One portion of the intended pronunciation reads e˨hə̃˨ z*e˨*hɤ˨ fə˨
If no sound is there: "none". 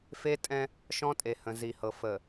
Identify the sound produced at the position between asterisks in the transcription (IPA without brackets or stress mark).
i˨